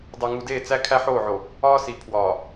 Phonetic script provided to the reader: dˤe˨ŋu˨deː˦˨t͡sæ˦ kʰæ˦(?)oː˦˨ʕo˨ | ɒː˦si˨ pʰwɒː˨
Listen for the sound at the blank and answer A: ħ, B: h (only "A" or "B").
A